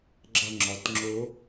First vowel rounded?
no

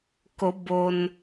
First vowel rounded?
yes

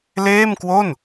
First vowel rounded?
no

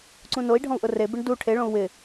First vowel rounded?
yes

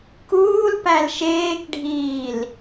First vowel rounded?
yes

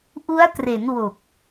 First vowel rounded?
yes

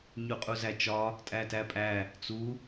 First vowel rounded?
yes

